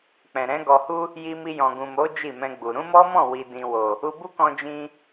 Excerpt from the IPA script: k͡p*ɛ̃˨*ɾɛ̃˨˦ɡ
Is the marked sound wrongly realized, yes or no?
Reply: no